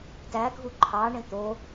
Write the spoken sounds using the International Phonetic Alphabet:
t æ ɡʱ u ǃʰ ɑ ɳ ẽ t̪ o

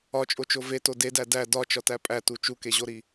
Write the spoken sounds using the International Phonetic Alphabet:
ɒ t͡ʃʼ o t͡ʃ o v e t o d e d æ d æ d ɒ t͡ʃ ɒ t æ pʼ æ t u t͡ʃ u k e ʑ o ɾ i

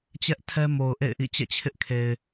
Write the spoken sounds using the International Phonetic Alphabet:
t͡ɕ ɛ˦ ʔ tʰ ɛ˦ m o˨ ʊ̯ ʔ ḛ˦˨ ɪ̯ ʔ ḭ˦˨ t͡ɕ ɛ̰˦˨ t͡ɕʰ ɪ˦ ʔ kʰ e˨ ɪ̯

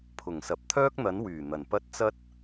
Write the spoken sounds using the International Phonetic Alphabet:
pʰ ʊ˨˩ ŋ s ɐ˨ p̚ t̪ʰ œː˥ k̚ n̪ ɐ˨˥ n w yː˨˩ n̪ ɐ˨˩ n p ɐ˥ t̚ t͡s ɐ˥ t̚

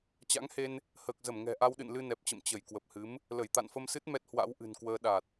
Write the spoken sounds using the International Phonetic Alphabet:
t͡ɕ a̰˧˥ ŋ h e˧ n | h əː˨˩ k̚ z ə˧˩ m ŋ ɛ̤˨˩ ʔ a˧ w ɗ ɨ̰˧˨ n l ɨ˧ n ɛ˨˩ p̚ t͡ɕ ə̰˧˨ m t͡ɕ ə˧˩ j k w ə˨˩ p̚ h ɨ˨˦ m | l ə˧˩ j t̪ a̰˧˨ n f ə˧ m s ɨ˦˥ t̚ m ɛ˦˥ t̚ h w a̰˧˥ w ʔ ɨ̤˨˩ n k w əː˧ ɗ a˨˩ t̚

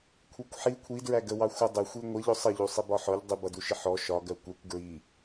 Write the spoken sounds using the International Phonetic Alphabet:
kʷʰ ɛ kʷ ħ i kʷʰ i d ɹ æ ɡ ə w ɑ xʷ ʌ dˤ ɪ xʷ i ŋʷ ə ʎ ʊ sˤ ə ʎ u sˤ i b ɒ ħ ɔ ʎ dˤ ɪ b ʌ d u ʃ ɪ ħ ɔ ʃ ɒ ɡ ɜ kʷ ɛ kʷ ɡ ɹ i

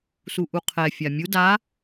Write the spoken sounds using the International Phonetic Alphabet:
s u ʔ u qʰ ɛ fʲ a mʲ u d a

